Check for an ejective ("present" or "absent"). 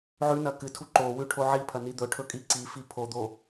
present